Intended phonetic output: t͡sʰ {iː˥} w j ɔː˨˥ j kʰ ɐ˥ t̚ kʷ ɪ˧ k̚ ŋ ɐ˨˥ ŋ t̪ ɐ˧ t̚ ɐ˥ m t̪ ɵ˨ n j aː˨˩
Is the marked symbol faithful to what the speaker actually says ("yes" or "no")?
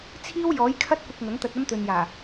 yes